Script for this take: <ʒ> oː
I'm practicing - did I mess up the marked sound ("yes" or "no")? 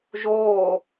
no